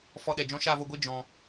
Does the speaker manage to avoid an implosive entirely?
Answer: no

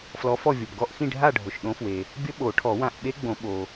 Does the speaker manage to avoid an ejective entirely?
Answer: yes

